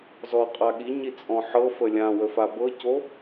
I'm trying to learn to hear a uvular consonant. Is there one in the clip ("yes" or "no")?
yes